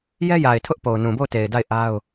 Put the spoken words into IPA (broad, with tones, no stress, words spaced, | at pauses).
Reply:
jɛ˦ja˨ɪ̯ tʰʊ˦ʔ po˨ʊ̯nũ˨bo˦˨ʊ̯ te˨ɪ̯da˦˨ɪ̯ ʔa˦ʊ̯